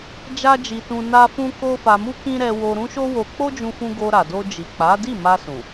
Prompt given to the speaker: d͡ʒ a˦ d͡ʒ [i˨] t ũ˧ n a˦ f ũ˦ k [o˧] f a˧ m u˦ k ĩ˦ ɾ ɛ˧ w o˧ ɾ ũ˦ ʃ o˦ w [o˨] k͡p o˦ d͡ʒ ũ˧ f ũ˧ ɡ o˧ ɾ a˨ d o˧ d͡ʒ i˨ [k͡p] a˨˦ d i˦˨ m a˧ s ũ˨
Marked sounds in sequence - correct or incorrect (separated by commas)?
incorrect, incorrect, incorrect, correct